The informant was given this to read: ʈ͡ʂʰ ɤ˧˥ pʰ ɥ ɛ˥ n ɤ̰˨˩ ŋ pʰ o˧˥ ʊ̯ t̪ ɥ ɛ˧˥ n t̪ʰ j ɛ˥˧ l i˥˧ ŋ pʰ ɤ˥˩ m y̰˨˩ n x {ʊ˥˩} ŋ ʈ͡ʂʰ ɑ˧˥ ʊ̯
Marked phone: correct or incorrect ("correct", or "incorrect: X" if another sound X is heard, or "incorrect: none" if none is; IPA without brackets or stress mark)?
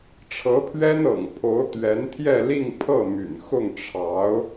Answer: correct